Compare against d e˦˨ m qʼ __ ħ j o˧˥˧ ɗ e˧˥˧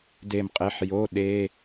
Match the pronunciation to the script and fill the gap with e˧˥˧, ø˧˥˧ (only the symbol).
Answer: e˧˥˧